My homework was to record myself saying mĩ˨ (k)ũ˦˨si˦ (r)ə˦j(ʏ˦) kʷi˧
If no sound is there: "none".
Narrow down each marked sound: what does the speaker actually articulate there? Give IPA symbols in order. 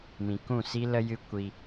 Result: k, l, ɨ˦

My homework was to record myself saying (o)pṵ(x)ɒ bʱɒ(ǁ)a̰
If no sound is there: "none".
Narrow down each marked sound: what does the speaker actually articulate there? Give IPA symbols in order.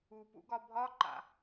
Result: u, ɡ, ǃ

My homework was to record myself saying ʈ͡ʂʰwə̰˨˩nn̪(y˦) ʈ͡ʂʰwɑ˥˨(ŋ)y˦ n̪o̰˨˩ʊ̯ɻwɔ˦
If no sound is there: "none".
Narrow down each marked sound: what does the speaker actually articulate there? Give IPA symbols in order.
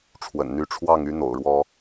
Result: y˦, ŋ

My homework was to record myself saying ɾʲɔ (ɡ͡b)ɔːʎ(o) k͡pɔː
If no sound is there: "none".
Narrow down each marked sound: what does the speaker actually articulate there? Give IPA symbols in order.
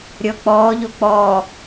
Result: k͡p, o

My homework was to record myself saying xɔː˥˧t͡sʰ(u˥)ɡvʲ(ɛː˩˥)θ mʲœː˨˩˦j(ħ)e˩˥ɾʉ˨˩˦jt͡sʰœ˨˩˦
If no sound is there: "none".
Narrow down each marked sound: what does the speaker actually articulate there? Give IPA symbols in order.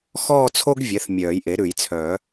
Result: o˥, ɛ˩˥, ʔ

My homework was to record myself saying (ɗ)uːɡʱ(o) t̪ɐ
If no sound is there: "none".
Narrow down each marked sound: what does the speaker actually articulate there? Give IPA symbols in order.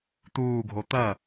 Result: t̪, o

